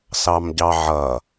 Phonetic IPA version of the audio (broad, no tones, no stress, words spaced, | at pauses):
sɑmɟɑʕʌː